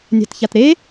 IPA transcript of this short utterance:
nʲ a̤ t ç a t ɾ e

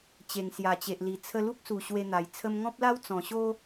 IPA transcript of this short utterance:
t͡ɕ e˨˩ ŋ s j a˨˩ t͡ɕ e˨ ʔ l i˨˩ t͡sʰ ə˧ l u˦ k̚ s u˨˩ ɕ w e˧ n̪ a˨˩ j t͡sʰ ə˧ m ŋ ɔ̃˦ p̚ l a˦ w t͡s ɔ̃˨˩ ɕ o˦

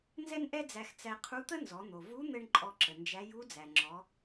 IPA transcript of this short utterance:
n z ɛ˥ n ʔ ɛ˥ d͡z æ˧ x t͡s æ˧ qʰ u˧˥ t̪ ə˥ n z ɔ˩˧ n̪ o˩ v u˧˥ n̪ ɘ˧ ɳ ǃʼ ɔ˧ ǁ ə˩ n d͡ʒ æ˧˥ j u˧˥ d͡z æ˩ ŋ͡ǁ ɔ˩˧

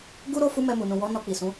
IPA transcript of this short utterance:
ɡ u˦ ɾ o˦ f u˦ m ɛ˧ m u˨ n ũ˨ w ɔ˨˦ n ɔ˧ k͡p i˨ s ũ˨˦

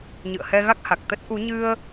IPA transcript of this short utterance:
ɲ ɨ̰˧˨ ə̯ h ɛ˧ ɣ a˦˥ k̚ h a˨˩ k̚ t̪ ə˦˥ t̚ ʔ u˨˦ ɲ ɨ˧ ə̯

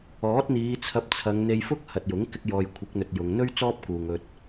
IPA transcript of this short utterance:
ɔː˨˥ t̚ n̪ iː˨˧ t͡sʰ ɐ˧ p̚ t͡sʰ ɐ˨˧ ŋ n̪ e˧ j f ʊ˥ k̚ h ɐ˨ t̚ j ʊ˨˥ ŋ k ɪ˧ k̚ j ɔː˨ j kʷʰ ɪ˨˥ k̚ n̪ ɵ˨ t̚ j ʊ˨ ŋ n̪ ɵ˥ ɥ t͡s ɔː˥ p̚ k uː˨ ŋ ɵ˧ t̚

